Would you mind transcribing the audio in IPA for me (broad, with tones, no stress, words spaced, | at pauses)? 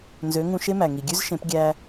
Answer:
nzø˩˥ ŋũ˧ʃe˥mæ˩ ŋi˩ɡʲʉ˥zʃẽ˩˥p ɡʲæ˧